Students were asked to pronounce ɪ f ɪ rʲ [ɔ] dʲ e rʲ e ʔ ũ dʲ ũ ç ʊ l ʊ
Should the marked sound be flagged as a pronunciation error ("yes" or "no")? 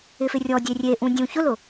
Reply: no